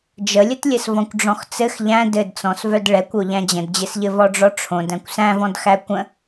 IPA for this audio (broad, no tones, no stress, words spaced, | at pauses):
d͡ʒəlʲətlʲɘs vɔ̃kʷɖ͡ʐɔ̃xt͡sɘx ʎæ̃ dɘdt͡sɔ̃svœd ɭɛkʷo ʎæ̃d͡ʑə̃dd͡ʑɘsʎɘ vɔɖ͡ʐɔʈ͡ʂʰõd æ̃kʷsæ̃vɔ̃dxæ kʷə̃